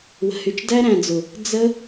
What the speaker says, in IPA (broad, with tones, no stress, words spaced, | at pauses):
wə̤˨hy˨t͡ʃ dæ˦ɾæ̃˨d͡zʊ˨ | d͡zə˦